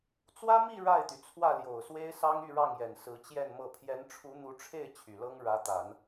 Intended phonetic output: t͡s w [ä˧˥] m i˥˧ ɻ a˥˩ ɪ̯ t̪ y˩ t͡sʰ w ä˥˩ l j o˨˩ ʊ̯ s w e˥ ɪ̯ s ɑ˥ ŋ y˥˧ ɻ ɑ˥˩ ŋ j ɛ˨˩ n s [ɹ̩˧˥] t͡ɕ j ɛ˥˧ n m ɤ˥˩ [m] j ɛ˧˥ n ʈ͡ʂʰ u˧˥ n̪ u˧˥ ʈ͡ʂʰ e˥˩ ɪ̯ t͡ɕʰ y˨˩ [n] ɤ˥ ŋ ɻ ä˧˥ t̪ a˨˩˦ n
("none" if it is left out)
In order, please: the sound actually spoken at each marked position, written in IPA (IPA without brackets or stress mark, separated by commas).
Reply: ä˥, ɹ̩˧˥, pʰ, l